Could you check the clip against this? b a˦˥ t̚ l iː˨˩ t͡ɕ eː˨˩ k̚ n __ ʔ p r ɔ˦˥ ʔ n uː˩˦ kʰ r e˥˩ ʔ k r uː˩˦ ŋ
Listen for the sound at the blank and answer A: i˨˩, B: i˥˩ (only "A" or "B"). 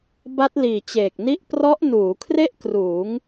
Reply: B